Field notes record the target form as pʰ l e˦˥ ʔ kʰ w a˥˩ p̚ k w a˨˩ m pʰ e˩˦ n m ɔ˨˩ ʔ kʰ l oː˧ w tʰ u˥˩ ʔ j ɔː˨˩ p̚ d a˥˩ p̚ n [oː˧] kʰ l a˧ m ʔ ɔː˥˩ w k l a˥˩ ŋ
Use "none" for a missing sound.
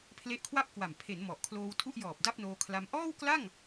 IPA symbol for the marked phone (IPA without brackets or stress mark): oː˧